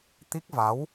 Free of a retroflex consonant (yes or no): yes